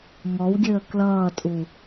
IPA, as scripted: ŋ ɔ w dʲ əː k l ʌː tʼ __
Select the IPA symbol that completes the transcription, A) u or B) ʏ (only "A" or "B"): A